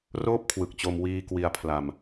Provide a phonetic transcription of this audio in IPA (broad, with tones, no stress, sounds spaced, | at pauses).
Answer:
r oː˥˩ p̚ kʰ w ɯ˨˩ k̚ t͡ɕ o˧ m w iː˧ k w i˧ a̯ pʰ l a˧ m